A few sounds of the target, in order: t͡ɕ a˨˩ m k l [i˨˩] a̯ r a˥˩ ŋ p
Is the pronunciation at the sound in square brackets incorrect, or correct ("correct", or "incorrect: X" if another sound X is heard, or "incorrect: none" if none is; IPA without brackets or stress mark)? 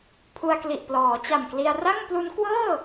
incorrect: i˧